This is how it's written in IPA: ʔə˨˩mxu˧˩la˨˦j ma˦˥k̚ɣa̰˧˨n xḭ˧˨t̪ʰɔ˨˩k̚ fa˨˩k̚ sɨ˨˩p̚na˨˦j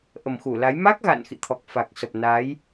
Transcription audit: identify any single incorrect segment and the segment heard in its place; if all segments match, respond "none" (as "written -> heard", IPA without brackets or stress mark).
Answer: ɨ˨˩ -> ə˨˩